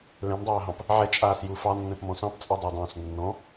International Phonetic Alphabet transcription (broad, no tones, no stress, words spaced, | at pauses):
lɛ̃mdˤaːɦɑ̃p | ʕɛt͡ʃʼaːsju fɑnːɛ̃pmɔ̃ sɑ̃pt͡sʼɛdˤɑdˤɑ̃ːs nːɔ̃